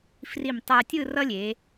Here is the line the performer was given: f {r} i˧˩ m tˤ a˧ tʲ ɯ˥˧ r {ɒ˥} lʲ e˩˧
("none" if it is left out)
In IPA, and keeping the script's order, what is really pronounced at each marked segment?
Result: r, ʌ˥

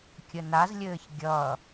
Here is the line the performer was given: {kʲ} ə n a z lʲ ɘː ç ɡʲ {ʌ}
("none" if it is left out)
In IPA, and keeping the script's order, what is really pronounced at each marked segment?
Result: kʲ, ʌ

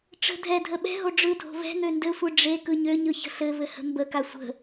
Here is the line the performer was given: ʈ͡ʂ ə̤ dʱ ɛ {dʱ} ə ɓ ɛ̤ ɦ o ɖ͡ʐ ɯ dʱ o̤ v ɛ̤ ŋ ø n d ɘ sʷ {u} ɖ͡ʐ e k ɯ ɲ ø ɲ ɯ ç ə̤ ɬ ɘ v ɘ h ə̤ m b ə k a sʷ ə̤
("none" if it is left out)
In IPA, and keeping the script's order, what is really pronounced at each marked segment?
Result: dʱ, ɯ

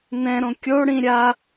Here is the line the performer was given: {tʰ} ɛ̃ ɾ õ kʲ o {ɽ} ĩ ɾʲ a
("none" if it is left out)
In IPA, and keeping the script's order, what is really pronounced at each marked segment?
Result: n, ɽ

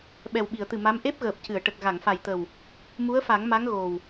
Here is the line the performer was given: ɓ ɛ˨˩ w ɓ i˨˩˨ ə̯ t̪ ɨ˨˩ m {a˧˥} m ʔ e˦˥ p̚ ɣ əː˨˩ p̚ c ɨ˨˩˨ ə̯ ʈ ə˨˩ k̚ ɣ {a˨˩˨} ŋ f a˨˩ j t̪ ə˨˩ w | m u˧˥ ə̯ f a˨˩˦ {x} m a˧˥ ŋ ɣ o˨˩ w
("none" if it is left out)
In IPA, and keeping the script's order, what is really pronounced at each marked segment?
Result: a˧˥, a˨˩˨, ŋ

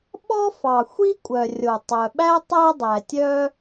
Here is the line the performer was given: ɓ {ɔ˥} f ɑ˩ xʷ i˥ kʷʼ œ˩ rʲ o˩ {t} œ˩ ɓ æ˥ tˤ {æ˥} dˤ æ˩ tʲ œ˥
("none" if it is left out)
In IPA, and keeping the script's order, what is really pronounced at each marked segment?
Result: ɔ˥, tˤ, æ˥

